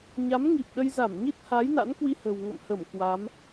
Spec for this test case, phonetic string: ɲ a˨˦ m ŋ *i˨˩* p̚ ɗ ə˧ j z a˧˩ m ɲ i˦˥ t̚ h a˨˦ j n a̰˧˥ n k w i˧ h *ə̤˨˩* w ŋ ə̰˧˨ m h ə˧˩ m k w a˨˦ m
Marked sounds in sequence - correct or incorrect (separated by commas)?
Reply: correct, correct